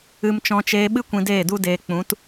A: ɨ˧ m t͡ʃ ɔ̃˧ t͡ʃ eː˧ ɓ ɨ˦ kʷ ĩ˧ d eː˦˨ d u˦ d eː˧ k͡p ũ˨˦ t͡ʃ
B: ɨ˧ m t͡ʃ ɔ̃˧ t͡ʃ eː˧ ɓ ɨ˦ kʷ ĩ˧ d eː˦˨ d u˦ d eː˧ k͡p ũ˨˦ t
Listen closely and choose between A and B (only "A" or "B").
B